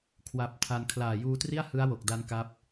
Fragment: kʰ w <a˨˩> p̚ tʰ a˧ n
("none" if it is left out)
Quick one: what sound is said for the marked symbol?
a˨˩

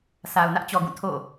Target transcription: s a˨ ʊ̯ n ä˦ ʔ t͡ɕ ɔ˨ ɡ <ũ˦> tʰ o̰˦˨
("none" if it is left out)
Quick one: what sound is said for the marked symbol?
ũ˦˨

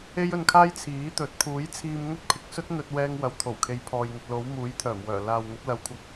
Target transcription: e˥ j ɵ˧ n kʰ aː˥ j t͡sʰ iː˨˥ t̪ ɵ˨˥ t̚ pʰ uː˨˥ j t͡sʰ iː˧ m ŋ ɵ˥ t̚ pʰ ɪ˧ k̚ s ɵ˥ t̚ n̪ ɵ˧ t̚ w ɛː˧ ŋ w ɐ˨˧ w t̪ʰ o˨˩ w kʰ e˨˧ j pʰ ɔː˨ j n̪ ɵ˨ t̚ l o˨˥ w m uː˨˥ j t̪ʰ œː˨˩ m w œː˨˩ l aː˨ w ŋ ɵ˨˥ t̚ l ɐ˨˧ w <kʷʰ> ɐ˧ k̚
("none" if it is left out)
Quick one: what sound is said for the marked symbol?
kʷʰ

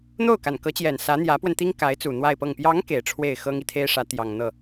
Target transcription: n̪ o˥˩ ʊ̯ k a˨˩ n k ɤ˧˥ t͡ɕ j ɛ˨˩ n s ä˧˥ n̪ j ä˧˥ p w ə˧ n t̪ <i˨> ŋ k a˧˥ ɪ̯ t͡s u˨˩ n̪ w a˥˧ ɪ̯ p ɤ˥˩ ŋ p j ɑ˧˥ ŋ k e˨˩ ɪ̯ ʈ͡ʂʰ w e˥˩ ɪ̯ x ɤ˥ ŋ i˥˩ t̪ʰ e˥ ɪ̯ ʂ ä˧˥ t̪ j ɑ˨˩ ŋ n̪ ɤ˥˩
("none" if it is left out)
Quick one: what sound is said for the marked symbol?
i˥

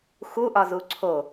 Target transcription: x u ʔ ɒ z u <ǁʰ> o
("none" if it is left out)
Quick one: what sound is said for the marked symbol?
ǀʰ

